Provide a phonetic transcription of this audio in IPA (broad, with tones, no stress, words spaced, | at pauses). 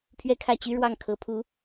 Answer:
pʰɥɛ˥˧kʰä˥˩t͡ɕy˥ ɻwɑ˥˩ŋkʰɤ˧˥pʰu˧˥